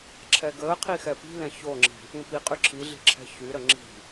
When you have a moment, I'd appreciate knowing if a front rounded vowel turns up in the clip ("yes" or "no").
yes